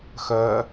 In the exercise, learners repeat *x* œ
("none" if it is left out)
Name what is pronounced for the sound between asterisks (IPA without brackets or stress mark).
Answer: x